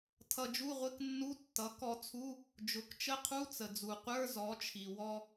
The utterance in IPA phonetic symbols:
tʰ ʌ˧ d͡ʒ u˧˥˧ ʁʷ ɪ˧˥˧ k nː u˧˥˧ tː ʌ˩˥ k ɔ˧ t͡sʰ u˧˥˧ | d͡ʒ ʊ˩˥ k t͡ʃ ə˧˥˧ qʰ u˧˥˧ t͡s ə˩ d͡z u˩ qʷ ə˞˧˥˧ z ɔ˩˥ t͡ʃʰ i˩ w ɔ˧

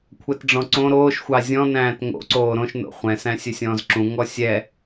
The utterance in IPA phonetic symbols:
kʷʰ ɛ t ɖ͡ʐ ɔ̃ ǀ õ ɾ oː ʃ xʷ ɑ zʲ ɔ̃ n æ̃ː t ŋ o̰ ǀ oː ɾ õ ʃ n o̰ χʷ ɛ̃ s æ̃ sʲ ɵ sʲ ɔ̃ː z ǁ ũ ŋ ɔ sʲ ɛ

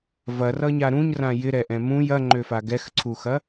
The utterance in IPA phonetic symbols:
v ɐ r ʌ ɲ a ɾ ũ ɲ r ã j ɪ ɾ ɛ ʔ ɛ̃ m ũ j ɐ ŋ͡ǃ ø f a ɡ ɛ x ǀʰ u x ɐ

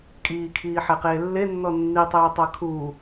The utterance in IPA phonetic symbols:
kʼ iː kʰ iː ħ ɛ q eː lː e nː ɔ nː i tˤ eː tˤ a kʰ uː

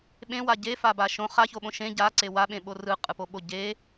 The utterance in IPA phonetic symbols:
ɓ ẽ w a ɟ e f a b a ʃ õ χ a ç o ɓ õ ʃ ẽ ɟ a ǀ e w a ɓ ẽ ɓ o r ɯ qʼ ɯ p o ɓ o ɟ e

